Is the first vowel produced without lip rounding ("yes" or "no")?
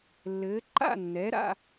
yes